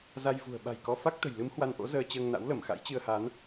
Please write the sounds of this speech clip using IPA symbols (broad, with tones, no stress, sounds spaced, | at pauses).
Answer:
z a˧ j v ṳ˨˩ ə̯ ɓ a̤˨˩ j k ɔ˧ f a˦˥ k̚ t̪ ə̤˨˩ j l ɨ˨˦ m h w a˧ n ʔ o̰˧˥ z əː˧ t͡ɕ əː˧ ŋ n a̰˧˥ w l ə˧˩ m x a̰˧˥ j t͡ɕ ɨ˧ ə̯ h a˨˦ n